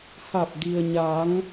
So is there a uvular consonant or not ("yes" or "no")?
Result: no